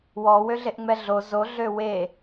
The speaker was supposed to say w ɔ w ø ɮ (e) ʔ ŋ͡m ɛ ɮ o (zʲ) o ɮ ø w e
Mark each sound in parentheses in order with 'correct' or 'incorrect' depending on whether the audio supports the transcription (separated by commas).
correct, incorrect